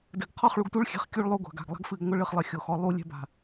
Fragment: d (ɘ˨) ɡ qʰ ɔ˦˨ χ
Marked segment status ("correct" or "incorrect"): correct